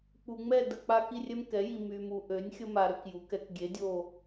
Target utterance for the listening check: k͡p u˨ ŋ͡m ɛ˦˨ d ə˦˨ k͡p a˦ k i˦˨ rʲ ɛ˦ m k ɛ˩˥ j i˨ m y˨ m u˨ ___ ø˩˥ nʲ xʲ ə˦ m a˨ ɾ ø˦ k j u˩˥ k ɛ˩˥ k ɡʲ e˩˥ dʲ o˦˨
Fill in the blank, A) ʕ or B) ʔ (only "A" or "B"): B